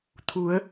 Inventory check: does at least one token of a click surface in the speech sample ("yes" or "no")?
no